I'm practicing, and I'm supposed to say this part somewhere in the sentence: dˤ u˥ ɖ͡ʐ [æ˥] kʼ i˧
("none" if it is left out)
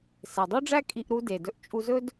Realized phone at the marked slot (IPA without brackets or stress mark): æ˥